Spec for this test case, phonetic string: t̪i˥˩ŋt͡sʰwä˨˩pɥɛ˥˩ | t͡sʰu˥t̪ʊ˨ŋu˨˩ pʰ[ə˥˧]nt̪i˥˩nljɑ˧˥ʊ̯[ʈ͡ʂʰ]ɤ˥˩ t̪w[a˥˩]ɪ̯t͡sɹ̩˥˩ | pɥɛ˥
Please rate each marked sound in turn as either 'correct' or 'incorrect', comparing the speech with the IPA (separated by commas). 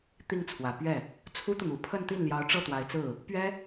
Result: correct, incorrect, incorrect